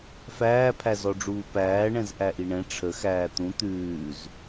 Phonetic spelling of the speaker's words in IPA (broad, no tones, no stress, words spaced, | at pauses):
fæːpʰæzɔɖ͡ʐuː pæːɳɛ̃z ʔæʔiɳɛ̃ ʈ͡ʂʰəxæː t̪ũ t̪ʉːz